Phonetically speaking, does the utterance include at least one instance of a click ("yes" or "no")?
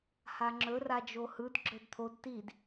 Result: yes